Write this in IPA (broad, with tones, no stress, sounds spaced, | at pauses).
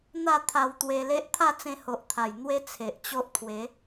n̪ a˥˧ t̪ʰ a˧ w t̪ w e˧ l e˦ ʔ t̪ʰ a˥˧ t͡s ẽ˧ h o˨ ʔ t̪ʰ a˨˩ j n̪ w e˦ t͡sʰ e˨ ʔ t͡ɕ o˦ ʔ t̪ʰ w e˨˦